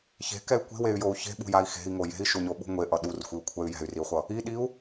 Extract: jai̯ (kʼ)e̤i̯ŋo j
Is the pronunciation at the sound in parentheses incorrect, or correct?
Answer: incorrect: x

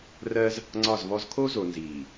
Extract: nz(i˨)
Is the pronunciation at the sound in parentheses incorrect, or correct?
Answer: incorrect: iː˨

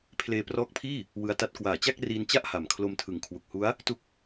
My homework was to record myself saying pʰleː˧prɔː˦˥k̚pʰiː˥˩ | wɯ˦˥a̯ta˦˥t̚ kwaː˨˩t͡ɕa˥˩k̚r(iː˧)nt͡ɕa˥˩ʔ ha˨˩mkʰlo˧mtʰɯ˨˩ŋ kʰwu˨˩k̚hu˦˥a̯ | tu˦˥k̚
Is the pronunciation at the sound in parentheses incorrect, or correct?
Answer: correct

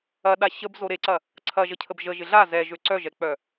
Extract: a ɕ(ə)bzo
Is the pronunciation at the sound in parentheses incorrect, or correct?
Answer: correct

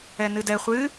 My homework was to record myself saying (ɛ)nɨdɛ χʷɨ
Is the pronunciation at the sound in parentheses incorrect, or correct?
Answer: correct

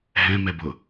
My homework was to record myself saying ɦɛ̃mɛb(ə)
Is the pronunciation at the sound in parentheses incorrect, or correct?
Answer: incorrect: ʊ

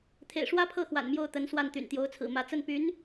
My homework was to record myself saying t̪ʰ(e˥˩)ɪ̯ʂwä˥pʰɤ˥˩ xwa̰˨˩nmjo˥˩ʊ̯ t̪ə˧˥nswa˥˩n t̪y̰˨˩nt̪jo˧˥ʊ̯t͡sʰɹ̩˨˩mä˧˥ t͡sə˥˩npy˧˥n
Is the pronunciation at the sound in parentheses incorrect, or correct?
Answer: incorrect: ḛ˨˩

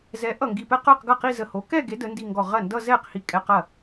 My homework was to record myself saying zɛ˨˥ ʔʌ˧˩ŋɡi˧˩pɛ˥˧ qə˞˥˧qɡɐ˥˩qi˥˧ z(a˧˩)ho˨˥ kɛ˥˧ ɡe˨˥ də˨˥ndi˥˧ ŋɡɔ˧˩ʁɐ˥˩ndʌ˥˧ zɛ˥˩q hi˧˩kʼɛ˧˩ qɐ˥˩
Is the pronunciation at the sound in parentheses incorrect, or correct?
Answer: incorrect: ə˧˩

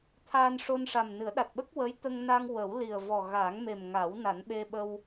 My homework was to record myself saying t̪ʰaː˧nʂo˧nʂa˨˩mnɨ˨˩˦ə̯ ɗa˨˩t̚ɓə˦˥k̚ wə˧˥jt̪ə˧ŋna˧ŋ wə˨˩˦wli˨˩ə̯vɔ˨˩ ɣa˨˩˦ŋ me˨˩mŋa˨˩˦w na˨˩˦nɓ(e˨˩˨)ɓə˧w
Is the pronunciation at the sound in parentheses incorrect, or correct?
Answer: incorrect: e˧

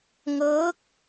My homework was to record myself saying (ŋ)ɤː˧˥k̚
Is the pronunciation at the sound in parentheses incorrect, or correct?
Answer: correct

